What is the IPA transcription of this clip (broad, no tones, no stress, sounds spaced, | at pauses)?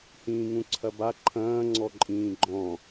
h ĩː ŋ ũ ǀʰ ɐ b a ǃʰ ɐ̃ː ŋ͡ǀ ɔ ǃʼ ĩː ɡ͡ǃ ɔ̃